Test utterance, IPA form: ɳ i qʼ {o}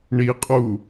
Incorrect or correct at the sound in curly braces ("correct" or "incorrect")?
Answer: incorrect